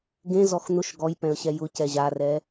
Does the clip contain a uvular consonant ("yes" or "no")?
no